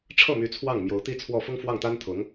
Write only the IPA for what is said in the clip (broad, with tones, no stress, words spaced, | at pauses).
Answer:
ʈ͡ʂʰɤ˥˩my˧˥ t͡sʰwɑ˥˩ŋ mjo˧˥ʊ̯t̪i˥t͡sʰwɔ˥˩ fʊ˥ŋ fwɑ˥˩ŋt̪a˥n t̪ʰʊ˧˥ŋ